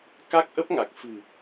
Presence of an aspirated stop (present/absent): absent